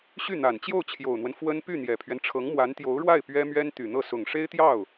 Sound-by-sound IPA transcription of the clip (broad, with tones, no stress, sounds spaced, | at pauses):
ɕ y˥˩ n̪ a˨˩ n t͡ɕ j o˥˩ ʊ̯ t͡ɕʰ j o˨˩ ʊ̯ n̪ w ə˦ n f w ə˥ n p y˥˩ n̪ j ɛ˨˩ pʰ ɥ ɛ˦ n ʈ͡ʂʰ ɤ˧˥ ŋ m w a˧˥ n t̪ j o˧˥ ʊ̯ ɻ w a˥˩ ɪ̯ p ɥ ɛ˥ m ɥ ɛ˥ n t̪ y˨˩ n̪ ɤ˥˩ s ʊ˨˩ ŋ ʂ e˥ ɪ̯ t̪ j ɑ˥˩ ʊ̯